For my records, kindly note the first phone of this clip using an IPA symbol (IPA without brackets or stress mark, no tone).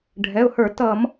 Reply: ɖʱ